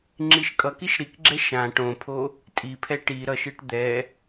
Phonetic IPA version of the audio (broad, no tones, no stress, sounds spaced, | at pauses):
ŋ͡ǁ i ʃ kʼ ʌ k i ʃ ɾ i k ɡ͡ǁ ɛ ʃ ã ʈ õ pʰ o | tʼ i pʰ ɛ ʈ i ɾ ʌ ʃ ɯ ʈ d̪ ɛ